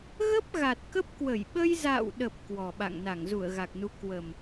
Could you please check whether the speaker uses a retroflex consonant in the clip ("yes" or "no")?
no